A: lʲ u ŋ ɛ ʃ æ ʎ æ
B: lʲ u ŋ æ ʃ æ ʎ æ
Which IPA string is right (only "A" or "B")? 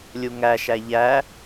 B